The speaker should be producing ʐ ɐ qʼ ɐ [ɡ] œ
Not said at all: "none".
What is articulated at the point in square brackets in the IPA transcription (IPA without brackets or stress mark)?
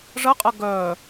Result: ɡ